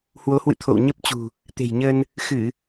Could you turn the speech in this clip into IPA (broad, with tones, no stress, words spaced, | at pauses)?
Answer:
hwo˨˦hwɨ̰˧˨ t̪ʰo̰˧˨w ɲə˦˥p̚t͡ɕṳ˨˩ | t̪e̤˨˩jɲəː˧n | xɨ˧˩˨